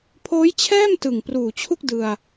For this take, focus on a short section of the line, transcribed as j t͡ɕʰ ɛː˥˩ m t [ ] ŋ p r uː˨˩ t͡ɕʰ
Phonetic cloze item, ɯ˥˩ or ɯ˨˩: ɯ˨˩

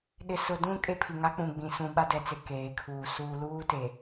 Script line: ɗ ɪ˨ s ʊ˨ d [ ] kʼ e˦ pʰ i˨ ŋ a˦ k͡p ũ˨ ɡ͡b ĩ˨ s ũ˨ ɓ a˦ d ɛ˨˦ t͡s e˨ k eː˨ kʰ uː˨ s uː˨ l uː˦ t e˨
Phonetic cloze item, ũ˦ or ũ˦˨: ũ˦˨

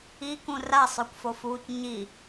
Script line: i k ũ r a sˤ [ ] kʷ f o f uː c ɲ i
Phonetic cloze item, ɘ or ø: ø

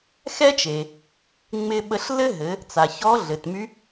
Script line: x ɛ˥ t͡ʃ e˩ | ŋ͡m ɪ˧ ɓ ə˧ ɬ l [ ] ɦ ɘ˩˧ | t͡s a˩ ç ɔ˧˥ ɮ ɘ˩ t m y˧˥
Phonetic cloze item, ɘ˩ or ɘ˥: ɘ˥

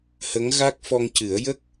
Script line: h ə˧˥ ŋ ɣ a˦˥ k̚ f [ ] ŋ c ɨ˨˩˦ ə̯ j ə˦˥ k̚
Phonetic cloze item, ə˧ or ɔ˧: ɔ˧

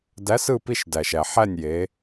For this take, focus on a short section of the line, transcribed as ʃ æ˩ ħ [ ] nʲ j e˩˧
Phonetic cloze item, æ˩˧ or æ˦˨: æ˦˨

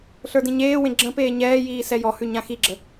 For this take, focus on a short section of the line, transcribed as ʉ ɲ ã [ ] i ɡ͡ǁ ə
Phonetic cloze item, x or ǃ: x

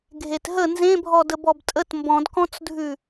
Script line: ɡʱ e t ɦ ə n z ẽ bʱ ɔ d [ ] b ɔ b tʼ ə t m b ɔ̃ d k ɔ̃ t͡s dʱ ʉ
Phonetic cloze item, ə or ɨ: ə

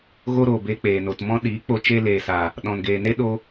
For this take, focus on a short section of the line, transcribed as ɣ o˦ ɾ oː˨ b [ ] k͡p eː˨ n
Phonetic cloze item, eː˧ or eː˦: eː˧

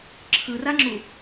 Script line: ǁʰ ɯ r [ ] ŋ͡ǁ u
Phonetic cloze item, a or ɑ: a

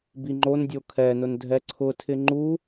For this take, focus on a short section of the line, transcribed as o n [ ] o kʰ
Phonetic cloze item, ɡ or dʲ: dʲ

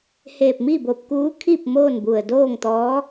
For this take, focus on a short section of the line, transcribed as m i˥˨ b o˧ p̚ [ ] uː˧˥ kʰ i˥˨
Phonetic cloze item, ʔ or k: k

